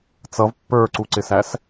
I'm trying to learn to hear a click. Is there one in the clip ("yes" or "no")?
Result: yes